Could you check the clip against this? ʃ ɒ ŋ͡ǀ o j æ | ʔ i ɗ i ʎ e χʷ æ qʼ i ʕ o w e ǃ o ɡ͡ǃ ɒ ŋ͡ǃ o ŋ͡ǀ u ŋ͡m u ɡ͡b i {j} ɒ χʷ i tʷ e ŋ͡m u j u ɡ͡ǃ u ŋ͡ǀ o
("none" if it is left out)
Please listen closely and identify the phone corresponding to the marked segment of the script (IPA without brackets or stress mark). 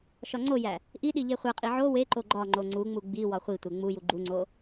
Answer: w